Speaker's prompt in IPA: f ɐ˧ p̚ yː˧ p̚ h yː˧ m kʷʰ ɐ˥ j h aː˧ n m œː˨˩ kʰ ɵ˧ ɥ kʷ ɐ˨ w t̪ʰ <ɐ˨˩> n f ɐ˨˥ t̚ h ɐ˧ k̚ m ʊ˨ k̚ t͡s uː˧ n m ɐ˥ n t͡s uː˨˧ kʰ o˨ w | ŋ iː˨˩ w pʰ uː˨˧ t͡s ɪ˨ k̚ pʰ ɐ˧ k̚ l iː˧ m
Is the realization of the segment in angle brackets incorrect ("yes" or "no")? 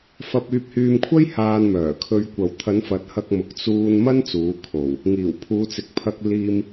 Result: yes